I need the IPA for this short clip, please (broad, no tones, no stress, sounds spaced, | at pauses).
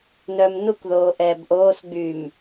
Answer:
n œː m n u k ð oː ʔ ɛː b ʔ oː s ɡ͡b yː m